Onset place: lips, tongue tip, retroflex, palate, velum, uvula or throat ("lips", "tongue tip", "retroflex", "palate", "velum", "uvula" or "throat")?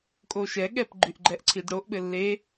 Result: velum